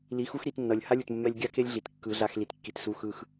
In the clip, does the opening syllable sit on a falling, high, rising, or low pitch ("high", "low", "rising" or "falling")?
rising